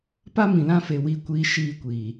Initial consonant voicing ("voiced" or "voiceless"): voiceless